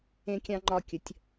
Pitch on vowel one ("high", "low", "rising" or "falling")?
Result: high